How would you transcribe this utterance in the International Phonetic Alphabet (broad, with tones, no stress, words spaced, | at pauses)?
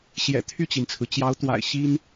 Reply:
ɕjɛ̰˨˩ t̪ʰy˥˩t͡ɕi˩nt͡sʰɹ̩˩ t͡ɕjɑ˧˥ʊ̯t̪wa̰˨˩ɪ̯ ɕi˥n